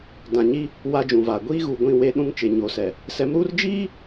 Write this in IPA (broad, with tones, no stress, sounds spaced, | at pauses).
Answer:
d ã˨ ɲ i˦ | w a˦ d͡ʒ ũ˨ v aː˨ ɡʷ iː˦ ɣ uː˨ ɡʷ ĩ˦˨ w e˦ ɗ ũ˦ ŋ t͡ʃ e˨ ɲ oː˨ s ɛ˨ | s ɛ˨˦ m ɾ uː˦ r d͡ʒ iː˦